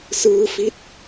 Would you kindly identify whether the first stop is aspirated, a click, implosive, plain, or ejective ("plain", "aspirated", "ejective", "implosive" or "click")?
plain